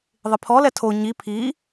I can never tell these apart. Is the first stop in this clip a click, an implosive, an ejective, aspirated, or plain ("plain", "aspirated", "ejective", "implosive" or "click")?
aspirated